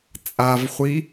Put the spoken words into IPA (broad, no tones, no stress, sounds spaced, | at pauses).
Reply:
t͡sʼ a v χʷ i